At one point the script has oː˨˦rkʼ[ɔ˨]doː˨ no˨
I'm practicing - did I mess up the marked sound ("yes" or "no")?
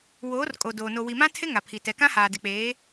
yes